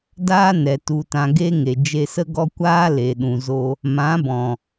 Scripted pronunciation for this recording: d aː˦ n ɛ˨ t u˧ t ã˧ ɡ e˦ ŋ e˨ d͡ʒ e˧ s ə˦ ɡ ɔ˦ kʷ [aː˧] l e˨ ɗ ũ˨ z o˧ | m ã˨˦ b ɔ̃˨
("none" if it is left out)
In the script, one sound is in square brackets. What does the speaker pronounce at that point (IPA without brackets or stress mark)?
aː˦